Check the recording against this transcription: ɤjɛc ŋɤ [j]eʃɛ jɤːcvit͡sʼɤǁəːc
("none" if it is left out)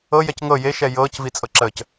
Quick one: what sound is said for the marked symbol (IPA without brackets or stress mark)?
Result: j